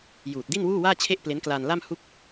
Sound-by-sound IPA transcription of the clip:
juː˨˩t̚di˥˩nwuː˥˩waː˥˩ t͡ɕʰe˥˩ʔple˦˥nklaː˧nla˥˩m hu˥˩k̚

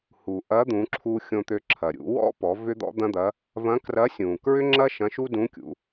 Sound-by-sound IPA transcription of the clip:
hu˩ʔɐ˧˥ d̪ũ˩˧ǁʰu˧ xʲõ˧t̪ø˧ ǁʰɐ˩ ɾʲṵ˩˧ wɔ̰˥pɔ˩˧ vʏ˥d̪ɔ̰˥d̪ɐ̃˥d̪ɐ˧˥ | vɐ̃˧˥krɐ˧˥sʲũ˩ kɹʏ˥ŋ͡ǁɐ˥ ʃɐ̃˧˥ʃu˥dũ˧˥kʲṵ˩˧

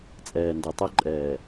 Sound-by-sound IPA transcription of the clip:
t͡sʼɛː˨ndɐ˨tˤɐ˦ǃʼɛː˨

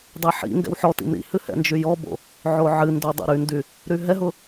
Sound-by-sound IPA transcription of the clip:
dˤeħḭŋɡɛ̰w ħɔ tḭmɾḭhɨ hɛ̰nd͡ʒyjɔbo̰ | ʕoʕɨndo dˤḭɾyndy | ɾyɦɛɦʊ

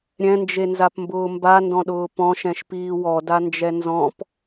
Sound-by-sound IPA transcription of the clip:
ɾʲɛ̃nd͡ʒenzapmbʊː mbandɔ̃ɗʊː pɔ̃ʃɛ̃ʃpiː wɔdand͡ʒɛ nzɔ̃p

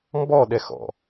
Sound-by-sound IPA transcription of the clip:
mbɔɗɛxɔ̰

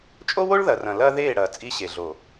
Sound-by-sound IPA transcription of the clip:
t͡ʃʼo˦wo˦ɭðɐ˨rɐ̃˨ lɐː˦ðeː˦˨ ɽɐː˨ t͡sʼi˦ɕe˨ɮo˨

